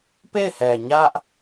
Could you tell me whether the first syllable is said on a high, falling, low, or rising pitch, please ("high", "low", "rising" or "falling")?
falling